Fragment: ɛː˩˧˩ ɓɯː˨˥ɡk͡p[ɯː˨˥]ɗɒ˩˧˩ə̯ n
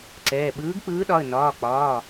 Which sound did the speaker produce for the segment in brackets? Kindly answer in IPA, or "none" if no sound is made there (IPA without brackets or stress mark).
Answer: ɯː˨˥